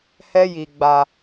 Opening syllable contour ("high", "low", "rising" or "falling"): high